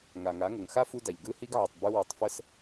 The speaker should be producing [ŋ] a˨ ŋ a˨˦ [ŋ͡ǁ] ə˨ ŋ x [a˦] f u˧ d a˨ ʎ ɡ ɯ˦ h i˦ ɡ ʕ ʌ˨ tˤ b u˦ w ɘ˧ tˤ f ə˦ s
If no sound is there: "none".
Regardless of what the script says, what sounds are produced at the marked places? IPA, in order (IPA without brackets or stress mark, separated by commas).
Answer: ŋ, ŋ, a˦